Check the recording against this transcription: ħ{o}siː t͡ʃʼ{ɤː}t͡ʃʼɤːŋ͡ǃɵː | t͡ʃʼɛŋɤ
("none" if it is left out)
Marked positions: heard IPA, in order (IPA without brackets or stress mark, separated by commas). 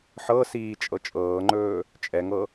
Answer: ɤ, ɤ